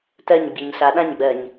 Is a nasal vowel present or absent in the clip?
present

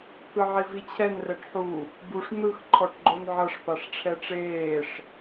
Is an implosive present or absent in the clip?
absent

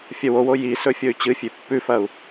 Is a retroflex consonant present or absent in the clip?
absent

